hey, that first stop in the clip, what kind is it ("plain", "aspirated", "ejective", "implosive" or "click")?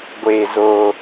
plain